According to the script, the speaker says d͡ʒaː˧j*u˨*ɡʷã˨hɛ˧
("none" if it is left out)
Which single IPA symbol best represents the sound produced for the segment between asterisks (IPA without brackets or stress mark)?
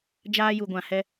u˨